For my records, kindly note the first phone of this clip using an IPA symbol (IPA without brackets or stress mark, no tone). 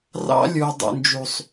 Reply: r